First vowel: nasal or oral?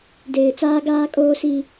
oral